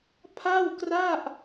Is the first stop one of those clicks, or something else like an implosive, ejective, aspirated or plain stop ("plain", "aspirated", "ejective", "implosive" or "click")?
aspirated